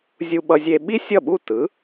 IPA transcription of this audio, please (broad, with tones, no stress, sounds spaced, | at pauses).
zʲ u˧ ɓ ʌ˧ zʲ e˧ ɓ i˥ sʲ ʌ˥˩ ɓ u˥˩ t ɯ˩˥